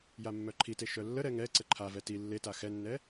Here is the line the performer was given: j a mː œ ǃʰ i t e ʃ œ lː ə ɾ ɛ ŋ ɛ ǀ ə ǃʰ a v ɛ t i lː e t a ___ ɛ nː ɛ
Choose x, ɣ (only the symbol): x